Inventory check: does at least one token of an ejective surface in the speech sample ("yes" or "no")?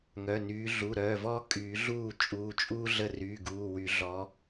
yes